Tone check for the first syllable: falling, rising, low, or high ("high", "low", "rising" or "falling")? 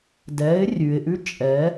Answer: rising